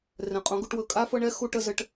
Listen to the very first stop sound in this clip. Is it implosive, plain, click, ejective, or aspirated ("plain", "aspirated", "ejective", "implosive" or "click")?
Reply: ejective